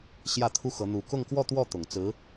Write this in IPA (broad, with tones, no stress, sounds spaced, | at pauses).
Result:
ɕ j ä˥˩ t̪ʰ u˥ x ɤ˧˥ n̪ u˧˥ k ʊ˥˧ ŋ k w ɔ˥˧ t̪ w ɔ˥˩ t̪ ʊ˨˩ ŋ t͡s ɹ̩˧˥